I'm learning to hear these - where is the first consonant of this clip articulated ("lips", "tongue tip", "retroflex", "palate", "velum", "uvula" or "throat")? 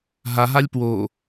throat